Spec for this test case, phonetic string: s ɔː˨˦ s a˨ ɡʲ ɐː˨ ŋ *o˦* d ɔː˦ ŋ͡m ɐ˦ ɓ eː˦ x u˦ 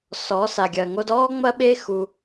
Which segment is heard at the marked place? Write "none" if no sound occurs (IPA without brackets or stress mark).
o˦